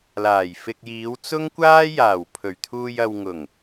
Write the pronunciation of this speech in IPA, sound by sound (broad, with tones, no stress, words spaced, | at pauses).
laː˨˩jfɪ˧k̚ jiː˨˧wt͡sʊ˥ŋkʷaː˥ jaː˨˩w pʰɵ˨˩ɥt̪ʰuː˧jɐ˧w ŋʊ˨˩ŋ